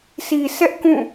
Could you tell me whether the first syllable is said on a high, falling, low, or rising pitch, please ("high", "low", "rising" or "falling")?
low